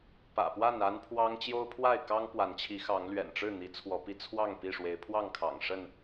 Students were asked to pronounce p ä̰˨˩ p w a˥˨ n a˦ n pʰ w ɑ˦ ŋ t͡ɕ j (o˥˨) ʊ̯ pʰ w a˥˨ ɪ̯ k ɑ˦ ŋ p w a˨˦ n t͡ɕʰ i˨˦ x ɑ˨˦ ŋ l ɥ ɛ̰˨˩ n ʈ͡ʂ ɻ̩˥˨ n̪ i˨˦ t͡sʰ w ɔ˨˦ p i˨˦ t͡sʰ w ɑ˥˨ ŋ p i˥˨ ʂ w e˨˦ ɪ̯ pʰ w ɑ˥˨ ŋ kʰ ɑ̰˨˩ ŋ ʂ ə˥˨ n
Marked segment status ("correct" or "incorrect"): incorrect